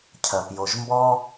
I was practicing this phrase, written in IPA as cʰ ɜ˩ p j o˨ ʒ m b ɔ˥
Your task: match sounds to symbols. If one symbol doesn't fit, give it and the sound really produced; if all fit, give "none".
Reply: none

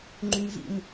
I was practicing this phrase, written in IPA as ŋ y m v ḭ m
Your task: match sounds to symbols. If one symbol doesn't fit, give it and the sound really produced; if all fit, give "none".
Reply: ŋ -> ŋ͡ǃ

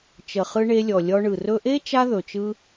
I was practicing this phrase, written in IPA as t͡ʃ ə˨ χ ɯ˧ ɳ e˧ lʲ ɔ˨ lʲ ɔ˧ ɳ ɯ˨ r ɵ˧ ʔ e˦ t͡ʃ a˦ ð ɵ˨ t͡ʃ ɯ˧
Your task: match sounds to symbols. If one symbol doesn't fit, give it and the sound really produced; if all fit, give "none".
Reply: none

